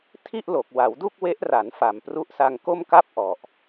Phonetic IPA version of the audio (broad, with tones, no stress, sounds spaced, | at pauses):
tʰ i˥˩ ʔ l o˨˩ k̚ w a˩˦ w d u˥˩ k̚ w e˦˥ ʔ r a˩˦ n f a˨˩ m p r u˦˥ ʔ s a˧ ŋ k o˥˩ m k a˥˩ p̚ ʔ ɔ˨˩ ʔ